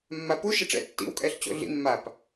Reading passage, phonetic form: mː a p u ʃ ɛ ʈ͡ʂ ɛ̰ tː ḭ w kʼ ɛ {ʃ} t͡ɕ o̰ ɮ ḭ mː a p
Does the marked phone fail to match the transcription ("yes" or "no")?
yes